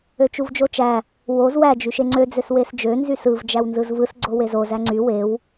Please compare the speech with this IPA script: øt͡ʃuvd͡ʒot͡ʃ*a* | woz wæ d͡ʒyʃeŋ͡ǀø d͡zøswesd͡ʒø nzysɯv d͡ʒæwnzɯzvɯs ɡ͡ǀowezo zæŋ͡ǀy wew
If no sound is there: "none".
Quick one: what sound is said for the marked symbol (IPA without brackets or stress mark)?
æ